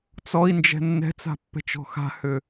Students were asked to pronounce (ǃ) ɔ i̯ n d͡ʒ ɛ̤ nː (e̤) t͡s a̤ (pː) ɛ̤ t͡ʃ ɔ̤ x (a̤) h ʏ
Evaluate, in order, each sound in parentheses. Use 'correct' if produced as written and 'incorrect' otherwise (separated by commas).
incorrect, incorrect, correct, correct